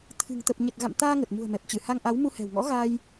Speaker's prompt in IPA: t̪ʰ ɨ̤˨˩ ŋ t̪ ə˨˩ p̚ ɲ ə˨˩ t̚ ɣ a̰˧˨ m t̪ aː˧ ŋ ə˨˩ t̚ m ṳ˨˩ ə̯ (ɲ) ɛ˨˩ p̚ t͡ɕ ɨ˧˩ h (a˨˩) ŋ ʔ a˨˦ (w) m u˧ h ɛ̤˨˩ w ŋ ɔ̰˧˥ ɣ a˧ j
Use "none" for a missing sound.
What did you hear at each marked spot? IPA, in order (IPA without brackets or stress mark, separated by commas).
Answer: m, a˧, w